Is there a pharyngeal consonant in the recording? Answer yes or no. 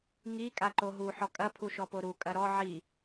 yes